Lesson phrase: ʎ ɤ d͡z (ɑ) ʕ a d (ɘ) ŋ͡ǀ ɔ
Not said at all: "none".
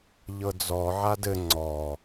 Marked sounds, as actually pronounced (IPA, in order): ɔ, ɘ

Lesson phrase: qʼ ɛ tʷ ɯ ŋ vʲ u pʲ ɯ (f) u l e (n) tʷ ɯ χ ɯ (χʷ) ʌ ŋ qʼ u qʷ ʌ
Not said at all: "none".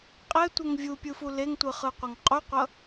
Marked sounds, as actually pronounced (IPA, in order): f, ŋ, qʷ

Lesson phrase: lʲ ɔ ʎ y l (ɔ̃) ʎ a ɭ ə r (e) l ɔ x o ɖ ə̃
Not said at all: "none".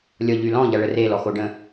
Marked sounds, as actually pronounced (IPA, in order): ɔ̃, e

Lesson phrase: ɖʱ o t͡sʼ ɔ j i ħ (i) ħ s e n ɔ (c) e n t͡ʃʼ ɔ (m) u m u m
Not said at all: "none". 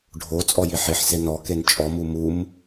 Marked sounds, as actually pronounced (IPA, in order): i, k, m

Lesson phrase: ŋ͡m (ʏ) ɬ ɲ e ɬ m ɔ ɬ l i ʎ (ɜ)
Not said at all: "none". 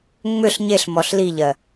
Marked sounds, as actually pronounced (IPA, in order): ʏ, ɜ

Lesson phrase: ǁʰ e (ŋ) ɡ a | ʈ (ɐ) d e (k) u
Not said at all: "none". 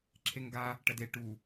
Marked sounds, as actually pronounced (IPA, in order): ŋ, ɐ, ʈ

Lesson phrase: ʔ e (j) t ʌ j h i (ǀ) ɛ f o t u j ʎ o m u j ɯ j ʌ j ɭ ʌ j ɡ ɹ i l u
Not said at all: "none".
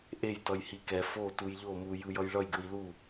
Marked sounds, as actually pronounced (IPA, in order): j, k

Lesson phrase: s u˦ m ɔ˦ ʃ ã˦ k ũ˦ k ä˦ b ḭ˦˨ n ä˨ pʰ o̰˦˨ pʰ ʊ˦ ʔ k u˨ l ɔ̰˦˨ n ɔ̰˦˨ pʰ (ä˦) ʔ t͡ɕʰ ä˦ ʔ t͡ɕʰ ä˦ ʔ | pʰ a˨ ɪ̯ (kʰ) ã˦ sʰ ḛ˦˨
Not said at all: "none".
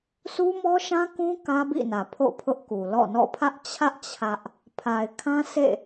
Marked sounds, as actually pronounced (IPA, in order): ä˦, kʰ

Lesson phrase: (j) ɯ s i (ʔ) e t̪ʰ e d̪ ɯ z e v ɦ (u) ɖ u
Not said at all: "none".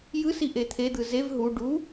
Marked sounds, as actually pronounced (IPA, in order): j, ʔ, u

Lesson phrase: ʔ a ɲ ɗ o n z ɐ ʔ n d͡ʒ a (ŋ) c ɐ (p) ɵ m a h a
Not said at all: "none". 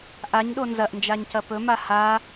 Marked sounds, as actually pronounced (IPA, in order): ɲ, p

